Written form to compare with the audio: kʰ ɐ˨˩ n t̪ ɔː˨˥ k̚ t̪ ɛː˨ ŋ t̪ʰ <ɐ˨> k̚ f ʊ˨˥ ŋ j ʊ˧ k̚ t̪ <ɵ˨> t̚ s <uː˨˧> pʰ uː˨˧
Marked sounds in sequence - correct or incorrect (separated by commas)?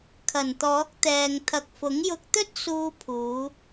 correct, incorrect, incorrect